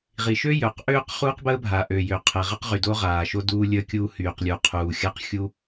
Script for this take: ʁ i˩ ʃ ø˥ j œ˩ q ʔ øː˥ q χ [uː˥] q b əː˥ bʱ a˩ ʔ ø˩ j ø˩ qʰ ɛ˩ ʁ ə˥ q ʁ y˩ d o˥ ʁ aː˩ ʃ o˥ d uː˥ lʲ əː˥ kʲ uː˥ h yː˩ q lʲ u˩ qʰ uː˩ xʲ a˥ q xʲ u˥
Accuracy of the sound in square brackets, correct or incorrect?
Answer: correct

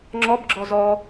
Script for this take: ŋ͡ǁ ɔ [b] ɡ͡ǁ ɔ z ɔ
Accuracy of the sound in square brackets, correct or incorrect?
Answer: correct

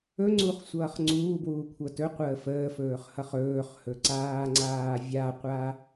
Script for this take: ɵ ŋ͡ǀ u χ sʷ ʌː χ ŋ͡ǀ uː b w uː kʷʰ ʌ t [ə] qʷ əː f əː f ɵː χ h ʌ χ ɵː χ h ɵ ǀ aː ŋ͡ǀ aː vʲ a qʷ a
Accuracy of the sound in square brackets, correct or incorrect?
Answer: incorrect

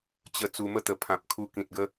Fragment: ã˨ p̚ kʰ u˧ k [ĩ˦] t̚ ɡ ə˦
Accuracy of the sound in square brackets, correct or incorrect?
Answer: incorrect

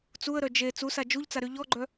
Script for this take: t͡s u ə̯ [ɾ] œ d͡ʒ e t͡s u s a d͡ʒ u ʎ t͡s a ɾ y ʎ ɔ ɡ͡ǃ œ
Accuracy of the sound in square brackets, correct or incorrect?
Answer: correct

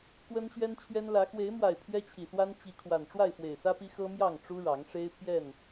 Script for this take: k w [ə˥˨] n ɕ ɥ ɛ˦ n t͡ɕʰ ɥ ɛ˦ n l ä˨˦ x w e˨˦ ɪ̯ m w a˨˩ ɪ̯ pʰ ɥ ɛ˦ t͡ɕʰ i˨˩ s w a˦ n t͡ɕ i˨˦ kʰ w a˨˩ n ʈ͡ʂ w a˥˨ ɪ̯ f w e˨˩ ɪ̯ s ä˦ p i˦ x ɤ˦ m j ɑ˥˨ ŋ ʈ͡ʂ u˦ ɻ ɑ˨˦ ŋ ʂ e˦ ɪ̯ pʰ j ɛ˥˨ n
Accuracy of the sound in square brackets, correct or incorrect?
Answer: incorrect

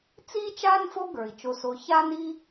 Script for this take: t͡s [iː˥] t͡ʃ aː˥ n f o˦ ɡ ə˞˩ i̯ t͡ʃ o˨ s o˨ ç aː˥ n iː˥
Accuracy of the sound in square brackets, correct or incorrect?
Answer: correct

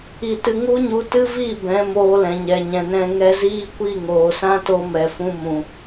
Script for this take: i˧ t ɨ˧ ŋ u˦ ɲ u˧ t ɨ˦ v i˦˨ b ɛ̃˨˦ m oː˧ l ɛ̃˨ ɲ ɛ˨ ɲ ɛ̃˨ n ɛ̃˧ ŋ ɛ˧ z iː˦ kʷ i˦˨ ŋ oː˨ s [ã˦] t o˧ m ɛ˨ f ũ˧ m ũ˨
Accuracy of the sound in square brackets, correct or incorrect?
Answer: correct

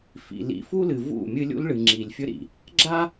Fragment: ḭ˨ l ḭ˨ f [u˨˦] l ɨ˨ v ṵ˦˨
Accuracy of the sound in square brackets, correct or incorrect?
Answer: incorrect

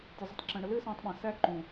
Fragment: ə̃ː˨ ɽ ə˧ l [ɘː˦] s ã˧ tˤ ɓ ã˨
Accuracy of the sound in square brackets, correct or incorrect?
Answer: correct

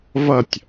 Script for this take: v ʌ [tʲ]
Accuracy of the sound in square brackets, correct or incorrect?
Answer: correct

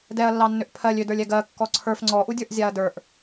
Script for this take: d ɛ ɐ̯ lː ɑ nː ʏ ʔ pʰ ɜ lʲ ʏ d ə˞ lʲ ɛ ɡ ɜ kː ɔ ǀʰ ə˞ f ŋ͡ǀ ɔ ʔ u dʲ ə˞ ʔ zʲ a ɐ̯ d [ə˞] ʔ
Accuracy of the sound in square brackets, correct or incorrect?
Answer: correct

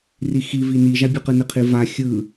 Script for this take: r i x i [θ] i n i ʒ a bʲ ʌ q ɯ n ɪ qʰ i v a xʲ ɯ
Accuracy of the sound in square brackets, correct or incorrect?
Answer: incorrect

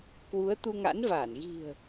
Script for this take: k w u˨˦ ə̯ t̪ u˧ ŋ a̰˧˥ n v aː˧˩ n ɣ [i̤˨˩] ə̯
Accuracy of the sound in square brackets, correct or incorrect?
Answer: correct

